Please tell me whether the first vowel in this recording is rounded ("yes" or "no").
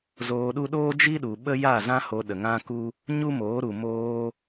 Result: yes